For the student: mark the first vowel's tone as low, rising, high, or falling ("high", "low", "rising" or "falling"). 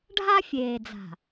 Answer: high